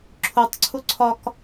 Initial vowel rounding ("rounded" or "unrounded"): rounded